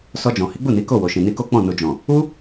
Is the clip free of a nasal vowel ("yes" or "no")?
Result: no